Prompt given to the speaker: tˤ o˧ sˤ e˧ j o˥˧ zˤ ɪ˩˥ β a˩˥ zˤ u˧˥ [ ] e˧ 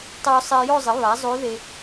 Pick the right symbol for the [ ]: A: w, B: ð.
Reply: B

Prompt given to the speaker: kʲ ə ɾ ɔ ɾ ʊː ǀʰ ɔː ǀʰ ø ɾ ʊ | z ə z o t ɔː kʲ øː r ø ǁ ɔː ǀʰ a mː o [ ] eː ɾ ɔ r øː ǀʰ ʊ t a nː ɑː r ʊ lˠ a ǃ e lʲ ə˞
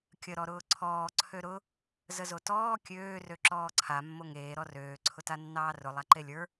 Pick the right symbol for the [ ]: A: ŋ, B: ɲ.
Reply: A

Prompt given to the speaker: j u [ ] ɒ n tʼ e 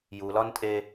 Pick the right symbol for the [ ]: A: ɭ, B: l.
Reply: B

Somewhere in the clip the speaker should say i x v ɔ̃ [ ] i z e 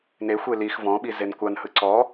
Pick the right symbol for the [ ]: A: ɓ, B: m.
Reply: A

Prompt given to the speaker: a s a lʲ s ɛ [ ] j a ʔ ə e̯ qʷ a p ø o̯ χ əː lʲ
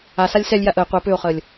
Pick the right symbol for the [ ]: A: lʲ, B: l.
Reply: A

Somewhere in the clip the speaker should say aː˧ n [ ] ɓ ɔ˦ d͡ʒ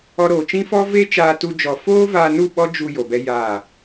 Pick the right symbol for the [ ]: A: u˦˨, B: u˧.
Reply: A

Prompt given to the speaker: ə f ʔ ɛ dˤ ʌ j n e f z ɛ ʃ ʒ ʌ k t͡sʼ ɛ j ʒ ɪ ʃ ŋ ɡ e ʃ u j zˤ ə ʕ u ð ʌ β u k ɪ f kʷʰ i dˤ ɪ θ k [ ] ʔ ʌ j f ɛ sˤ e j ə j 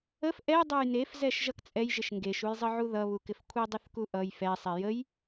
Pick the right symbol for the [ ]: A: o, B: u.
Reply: B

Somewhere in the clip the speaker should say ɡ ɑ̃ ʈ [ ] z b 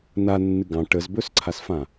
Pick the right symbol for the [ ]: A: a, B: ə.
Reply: B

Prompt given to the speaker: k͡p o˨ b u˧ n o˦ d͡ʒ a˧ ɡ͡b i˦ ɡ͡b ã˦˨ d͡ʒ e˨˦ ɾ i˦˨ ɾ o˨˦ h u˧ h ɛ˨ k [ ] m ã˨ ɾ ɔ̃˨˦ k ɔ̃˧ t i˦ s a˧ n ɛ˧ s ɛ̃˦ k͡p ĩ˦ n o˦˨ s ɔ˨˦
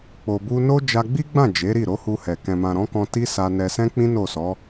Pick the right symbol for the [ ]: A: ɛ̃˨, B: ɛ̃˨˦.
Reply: A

